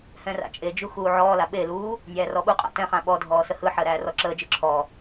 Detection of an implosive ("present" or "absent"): present